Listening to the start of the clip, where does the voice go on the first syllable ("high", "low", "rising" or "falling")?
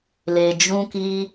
low